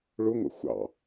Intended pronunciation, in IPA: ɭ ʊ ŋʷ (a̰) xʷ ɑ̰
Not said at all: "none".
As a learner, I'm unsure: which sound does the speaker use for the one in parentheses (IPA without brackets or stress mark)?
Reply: ə̰